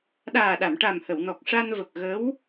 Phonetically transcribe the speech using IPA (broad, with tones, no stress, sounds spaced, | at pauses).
ɗ aː˨˩ ɗ a˨˩˨ m ʈ a˨˩ m h ə˨˩˨ w n ɔ˨˩ k̚ ʂ a˧ n v ə˨˩ k̚ ɣ ə˧˥ w